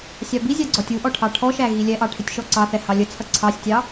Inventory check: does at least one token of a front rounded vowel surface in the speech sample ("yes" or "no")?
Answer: no